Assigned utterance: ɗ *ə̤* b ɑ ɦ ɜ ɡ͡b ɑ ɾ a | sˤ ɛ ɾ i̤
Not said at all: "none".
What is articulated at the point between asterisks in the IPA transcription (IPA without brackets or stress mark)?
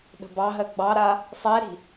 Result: ə̤